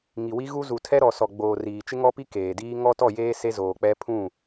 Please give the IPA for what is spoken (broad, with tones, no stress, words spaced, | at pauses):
ŋi˨wi˦ɣu˦ zu˨tʰɛ˦ɾɔ˨sɔ˨ ɡ͡boː˨ riː˨t͡ʃɪ˦ŋɔ˦pi˦ keː˨diː˦ ŋɔ˦tɔ˦˨jeː˦ se˦zoː˨ k͡pɛ˦ pʰũ˦˨